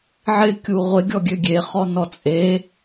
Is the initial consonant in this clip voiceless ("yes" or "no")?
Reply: no